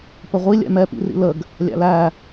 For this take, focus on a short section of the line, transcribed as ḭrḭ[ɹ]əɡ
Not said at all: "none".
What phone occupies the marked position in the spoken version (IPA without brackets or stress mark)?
l